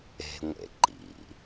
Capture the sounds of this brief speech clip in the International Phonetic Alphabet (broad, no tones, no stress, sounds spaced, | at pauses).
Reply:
e̤ ŋʷ ḛ ǃ ḭ